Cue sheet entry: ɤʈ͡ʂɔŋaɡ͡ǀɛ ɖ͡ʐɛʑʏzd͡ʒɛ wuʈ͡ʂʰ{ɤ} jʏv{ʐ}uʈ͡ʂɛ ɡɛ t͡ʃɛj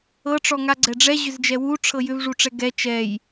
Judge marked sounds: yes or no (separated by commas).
yes, yes